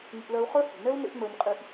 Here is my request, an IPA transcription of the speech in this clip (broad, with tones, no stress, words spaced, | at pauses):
ŋḭ˧ʔlɜ˧u̯χə˞˦ hi̤˨nɛ˦u̯ nḛ˦ʔŋ͡mə˞˧ɲqʼi˧ʔ